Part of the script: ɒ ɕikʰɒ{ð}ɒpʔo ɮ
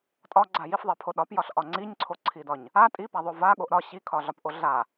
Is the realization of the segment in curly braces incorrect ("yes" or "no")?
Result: yes